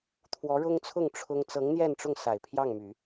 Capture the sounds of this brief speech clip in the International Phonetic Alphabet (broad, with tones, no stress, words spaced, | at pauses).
t̪ʰwɔ˧˥ɻʊ˥ŋt͡sʰʊ˥˩ŋ ʈ͡ʂʰʊ˥ŋ t͡sɤ˧˥ŋn̪jɛ˥˧nʈ͡ʂʊ˥˩ŋ sa˨˩ɪ̯pʰjɑ˥˩ŋmy˨˩˦